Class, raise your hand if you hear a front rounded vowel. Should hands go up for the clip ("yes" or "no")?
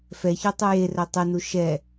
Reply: yes